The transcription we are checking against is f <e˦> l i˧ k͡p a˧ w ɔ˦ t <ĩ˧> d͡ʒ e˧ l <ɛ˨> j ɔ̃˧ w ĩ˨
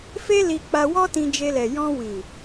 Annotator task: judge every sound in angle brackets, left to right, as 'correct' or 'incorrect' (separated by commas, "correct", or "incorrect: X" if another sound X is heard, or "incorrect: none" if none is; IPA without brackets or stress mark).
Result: correct, correct, correct